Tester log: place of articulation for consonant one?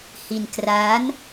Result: glottal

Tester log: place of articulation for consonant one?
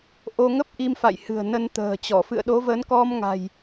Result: glottal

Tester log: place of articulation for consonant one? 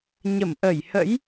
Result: palatal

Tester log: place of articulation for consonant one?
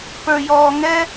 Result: labial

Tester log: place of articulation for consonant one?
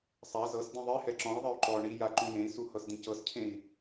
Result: alveolar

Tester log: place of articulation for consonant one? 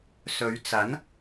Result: alveolar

